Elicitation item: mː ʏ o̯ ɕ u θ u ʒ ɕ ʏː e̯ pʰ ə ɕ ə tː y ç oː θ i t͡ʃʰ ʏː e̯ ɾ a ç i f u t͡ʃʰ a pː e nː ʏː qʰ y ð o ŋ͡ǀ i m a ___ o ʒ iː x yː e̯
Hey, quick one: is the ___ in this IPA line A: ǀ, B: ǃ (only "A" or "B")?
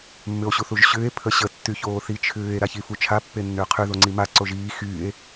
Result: A